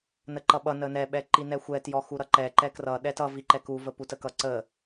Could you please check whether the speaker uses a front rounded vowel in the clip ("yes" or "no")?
no